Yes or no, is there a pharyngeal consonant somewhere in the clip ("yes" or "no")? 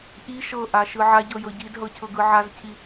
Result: yes